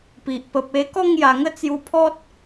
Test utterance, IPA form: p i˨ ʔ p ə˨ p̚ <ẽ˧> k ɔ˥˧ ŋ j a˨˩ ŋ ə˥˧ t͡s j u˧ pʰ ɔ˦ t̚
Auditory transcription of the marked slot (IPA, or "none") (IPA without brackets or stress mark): e˧